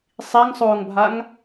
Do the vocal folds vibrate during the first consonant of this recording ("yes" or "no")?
no